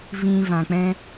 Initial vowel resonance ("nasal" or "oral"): nasal